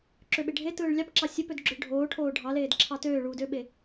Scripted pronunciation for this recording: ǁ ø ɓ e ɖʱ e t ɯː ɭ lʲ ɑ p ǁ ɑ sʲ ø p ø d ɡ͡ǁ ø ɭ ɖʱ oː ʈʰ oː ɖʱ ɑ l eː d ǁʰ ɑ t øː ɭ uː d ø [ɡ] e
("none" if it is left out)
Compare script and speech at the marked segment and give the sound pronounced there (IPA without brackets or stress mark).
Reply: ɓ